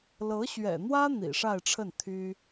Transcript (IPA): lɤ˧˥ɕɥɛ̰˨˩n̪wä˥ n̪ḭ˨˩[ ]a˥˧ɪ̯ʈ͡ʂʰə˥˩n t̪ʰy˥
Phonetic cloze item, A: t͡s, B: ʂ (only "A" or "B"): B